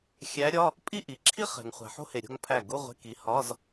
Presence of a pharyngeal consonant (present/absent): present